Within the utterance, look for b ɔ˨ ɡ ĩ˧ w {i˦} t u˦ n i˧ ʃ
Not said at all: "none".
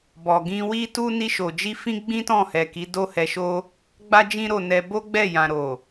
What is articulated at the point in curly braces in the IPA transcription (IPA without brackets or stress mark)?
i˦